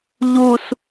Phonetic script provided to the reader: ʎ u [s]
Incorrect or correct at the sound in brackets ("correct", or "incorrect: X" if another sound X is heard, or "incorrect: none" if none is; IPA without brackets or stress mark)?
correct